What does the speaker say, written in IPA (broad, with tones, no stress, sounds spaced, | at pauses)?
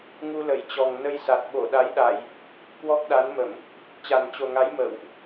ŋ u˧ l ə˧˩ j t͡ɕ ɔ˨˩ ŋ n ə˧ j s a˨˩ t̚ ɓ o˧˩ ɗ a˨˦ j ɗ a˧˩˨ j | k w ɔ˦˥ k̚ ɗ a˨˦ n m ə˧˩˨ m | t͡ɕ a˨˩ n t͡ɕ o˨˩ ŋ a˨˦ j m ə̰ː˧˨ w ʔ